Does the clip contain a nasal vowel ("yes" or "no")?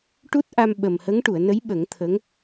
no